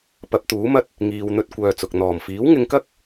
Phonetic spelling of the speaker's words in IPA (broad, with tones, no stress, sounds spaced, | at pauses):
p ɐ˨˥ p̚ t̪ uː˨˥ m ɐ˥ t̚ | ŋ iː˧ w n̪ ɵ˥ t̚ kʷ œː˧ t͡s ʊ˨ k̚ n̪ ɔː˨˩ m f iː˨˥ w ŋ ɪ˧ ŋ k ɐ˥ k̚